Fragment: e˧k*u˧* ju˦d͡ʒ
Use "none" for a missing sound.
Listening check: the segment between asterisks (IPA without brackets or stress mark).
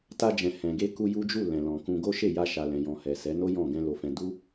u˧